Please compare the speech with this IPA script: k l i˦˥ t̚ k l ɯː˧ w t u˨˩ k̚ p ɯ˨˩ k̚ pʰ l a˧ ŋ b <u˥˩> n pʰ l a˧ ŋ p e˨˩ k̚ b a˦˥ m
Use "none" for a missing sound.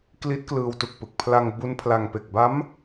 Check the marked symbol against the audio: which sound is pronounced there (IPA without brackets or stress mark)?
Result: u˦˥